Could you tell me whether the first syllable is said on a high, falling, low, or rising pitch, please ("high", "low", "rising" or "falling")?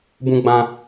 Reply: high